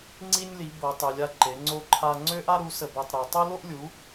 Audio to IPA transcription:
ŋ͡ǀ i˦ nʲ l i˨˦ b o˨˦ tˤ ø˨˦ lʲ a˦ ǃ e˨˦ ŋ͡ǀ o˦ ǃʰ a˦ ŋ͡ǀ ø˦ ʔ a˦ ɾ u˨˦ s ə˦ b o˦ tˤ ɾ ø˨˦ tˤ u˦ l o˦ ʔ lʲ u˨˦

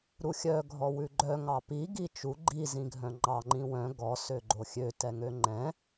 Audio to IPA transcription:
ɾ u xʲ œ ɡʱ ɔ w ʉ ɡ͡ǃ œ ŋ ɑ p i ɡ i t͡ʃ u ɡ͡ǃ i z ĩ ɡʱ œ̃ ŋ͡ǃ ɑ ŋ͡ǃ ĩ w œ̃ ɡ ɔ s ø ɡ͡ǃ o xʲ ø t ɛ ŋ ø ŋ͡ǃ ɛ̃

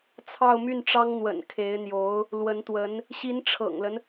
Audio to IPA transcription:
t͡sʰ ɑ˥˧ ʊ̯ m y˥˩ n ʈ͡ʂ ɑ˥ ŋ n̪ w ə̰˨˩ n kʰ e˧˥ ɪ̯ n̪ j o˧˥ ʊ̯ | l w ə˧˥ n t̪ w ə˧˥ n | ɕ i˧˥ n ʈ͡ʂʰ ɤ̰˨˩ ŋ l ə˦ n

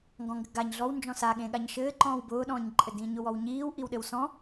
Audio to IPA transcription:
ŋ ɡ ɔ̃ ŋ ɡ ɘ ɡ a ɲ ɮ ɔ w n d͡ʒ ɔ̃ s a ɠ ẽ ɠ a ɲ ʃ ɘː ǃ ɔ̃ː w b ʊː ɗ ɔ̃ː ɲ ǃʼ ɘ d ĩː ɲ ʊ w ɔ w ɲ iː w ʔ i w ɗ ɘ w s ɔ̃

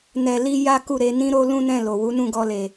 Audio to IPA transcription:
n ɛ˧ l i˦ j a˦ k u˦˨ ɾ e˧ n ĩ˦ ɾ o˦ l ũ˦ n ɛ̃˦˨ l o˨ w u˨˦ n ũ˦˨ ɡ ɔ˧ l e˨

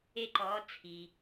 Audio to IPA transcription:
e˧ ǃ ɔː˩˧ t͡sʰ i˩

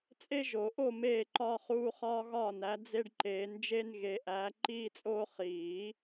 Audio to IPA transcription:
t͡sʼ e˦ ʒ o˨˩˦ ʔ o˦˨ m eː˦˨ ǃ ɒː˦ χ uː˦ χ ɒː˦ ɣ ɒː˦˨ n æ˨˦ d͡z e˦ ɖ ǃ eː˨˦ n d͡ʒ e˦ n ɣ e˨˦ ʔ æː˨˦ ǃ iː˦ t͡sʼ oː˦ χ iː˨˩˦

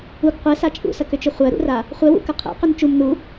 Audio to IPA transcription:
u ɡ qʷ ɛ s a t͡ʃʼ ṵ s ɐ k ʏ t͡ʃ ʏ χʷ ɜ ɾ ṵ r a | χʷ ɛ w ṵ k ɐ qʰ ɛ̰ q ʏ n t͡ʃ u m n u

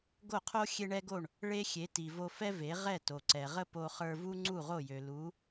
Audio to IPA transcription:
ɡ o˥˩ qʰ o˥ xʲ e˥ ɳ ɛ˥ ɡ o˥˩ ɳ | ɭ e˥ xʲ e˩˥ t i˩ v o˧ f ɛ˥ v e˩˥ ʁ ɛ˥˩ t o˩ ǀ ɛ˩ ʁ ə˥ p o˧ χ ə˞˧ v u˥ ŋ͡ǀ u˥˩ ʁ o˥˩ j ø˩ l u˩˥

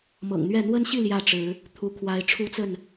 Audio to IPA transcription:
m ɤ̰˨˩ ŋ n̪ ɥ ɛ˥˨ n̪ w ə˦ n ɕ i˥˨ l j ä˥˨ ʈ͡ʂ ɻ̩˨˦ | t̪ʰ u˦ kʰ w a˦ ɪ̯ ʈ͡ʂʰ u˦ t͡s ə˥˨ n

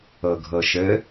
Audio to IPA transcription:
ɤ ɡʱ ɤ ʃ ɘ

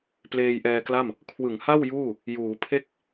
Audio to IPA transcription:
p l eː˧ j ʔ ɛː˧ k l a˥˩ m | kʰ w ɯ˩˦ ŋ h a˥˩ w j uː˥˩ | j uː˩˦ pʰ e˥˩ k̚

